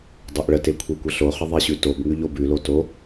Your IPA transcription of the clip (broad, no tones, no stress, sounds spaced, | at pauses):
dˤ o ʔ ɭ ə t e kʷʰ e kʷ ə ɬ o χ ə ðˤ e ɕ ʉ t o b ŋ ʉ ʎ o b ʉ l o t o